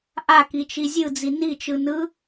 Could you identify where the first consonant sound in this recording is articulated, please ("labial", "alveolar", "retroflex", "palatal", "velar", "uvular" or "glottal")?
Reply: glottal